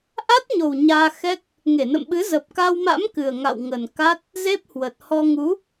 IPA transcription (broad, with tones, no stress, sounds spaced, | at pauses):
ʔ a˦˥ t̚ ɲ o˨˩ w ɲ aː˧ x ɛ˦˥ k̚ | ŋ e˧˩ n ə̰˧˨ m ɓ ɨ˨˦ z ə˨˩ p̚ k a˧ w m a̰˧˥ m k ɨ˨˩ ə̯ ŋ a̰˧˨ w ŋ ə˨˩ n k a˦˥ t̚ | z e˦˥ p̚ h w ə˨˩ t̚ h ɔ˧ ŋ u˨˦